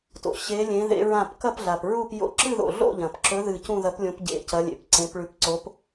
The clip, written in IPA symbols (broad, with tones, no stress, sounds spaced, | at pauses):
t o̰˨ ɕ e˧˥ lʲ ẽ˧˥ ð ḛ˧˥ ɹ ã˥˧ p k ɐ˥˧ p ɮ a˨ p ɹ u˥˧ p j o̰˧˥ ǁ ɨ˥˧ ð o̰˨ ɮ o̰˥˧ ʎ ɐ̃˨ p ǁ ɵ˧˥ ð ɨ˥˧ c ũ˥˧ ð ɐ˧˥ p lʲ õ˧˥ p ɟ ḛ˧˥ c ɐ˧˥ lʲ ḛ˨ p ǀ ẽ˧˥ p ɭ ʉ˧˥ p ǀ o˧˥ p